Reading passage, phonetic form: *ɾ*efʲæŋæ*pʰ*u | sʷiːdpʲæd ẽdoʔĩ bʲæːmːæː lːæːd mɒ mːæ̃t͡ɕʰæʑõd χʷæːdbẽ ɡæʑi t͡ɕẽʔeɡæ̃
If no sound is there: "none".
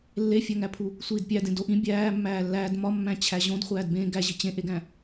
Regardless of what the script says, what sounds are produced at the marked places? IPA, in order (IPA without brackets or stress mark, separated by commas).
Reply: lː, pʰ